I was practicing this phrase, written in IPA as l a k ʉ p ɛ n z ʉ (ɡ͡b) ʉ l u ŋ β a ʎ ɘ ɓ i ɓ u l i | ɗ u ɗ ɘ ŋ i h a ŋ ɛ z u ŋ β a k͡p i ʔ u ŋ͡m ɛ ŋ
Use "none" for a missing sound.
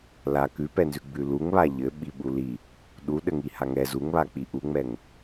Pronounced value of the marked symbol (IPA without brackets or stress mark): ɡ͡b